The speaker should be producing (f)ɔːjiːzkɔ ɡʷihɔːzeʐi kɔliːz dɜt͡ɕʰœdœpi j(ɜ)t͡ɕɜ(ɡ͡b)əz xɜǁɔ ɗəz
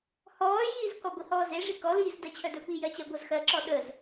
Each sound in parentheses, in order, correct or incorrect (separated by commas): incorrect, correct, incorrect